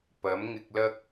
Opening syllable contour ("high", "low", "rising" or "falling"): rising